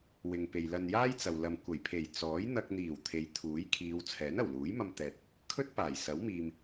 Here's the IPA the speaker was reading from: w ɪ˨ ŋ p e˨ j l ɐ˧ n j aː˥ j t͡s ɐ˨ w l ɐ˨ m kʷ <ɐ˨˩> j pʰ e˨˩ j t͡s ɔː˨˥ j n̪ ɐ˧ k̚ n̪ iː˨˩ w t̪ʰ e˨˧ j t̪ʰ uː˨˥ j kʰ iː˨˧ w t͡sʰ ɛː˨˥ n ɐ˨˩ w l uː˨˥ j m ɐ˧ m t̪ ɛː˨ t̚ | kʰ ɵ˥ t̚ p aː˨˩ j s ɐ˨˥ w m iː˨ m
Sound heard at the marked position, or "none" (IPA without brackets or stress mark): ɐ˨˩